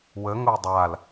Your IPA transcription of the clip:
w ə ŋ o dˤ a l

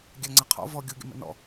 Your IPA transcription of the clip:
ɡʲ a ŋ͡ǀ a qʰ ɔ̰ v ɔ ɡʲ u ɡʲ ə̰ m ə̰ n ɔ̰

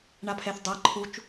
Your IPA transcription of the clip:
ɳ a pʰ ɛ θ dˤ a ǃʰ u t͡ʃ

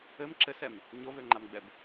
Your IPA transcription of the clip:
ɘ m ǁ ɘ s ɛ m | ɲ o v ø ŋ͡ǃ a m ɡ͡b ɛ b

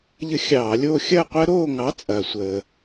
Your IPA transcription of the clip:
ʎ ə˦ xʲ ɑː˧˩˧ lʲ oː˦ xʲ ɐː˦˨ qʷ əː˦ ɾ oː˦˨ ŋ ɑ˨˥ t͡sʼ ɐː˩ sʷ əː˩

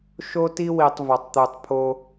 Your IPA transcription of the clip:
ʃ o˦ t i˦ w i˨ tˤ v ɒ˨ tˤ t̪ u˨ tˤ pʰ o˦

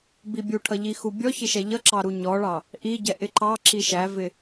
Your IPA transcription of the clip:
b i bʲ u ʈʰ ʌ ʎ i x u bʲ ɔ ç ɪ ʃ ɛ ʎ ʌ ǁ ɑ ɾ u ɲ ɔ ɭ ɑ | ʔ i ɟ ɛ ʔ ɪ ǃ ɑ ǁ i ʃ æ v ɪ

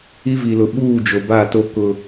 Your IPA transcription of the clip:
i˦ v i˨ l ʊ˨ ɓ uː˦˨ d͡ʒ o˨ b a˦˨ t o˦ k ʊ˨

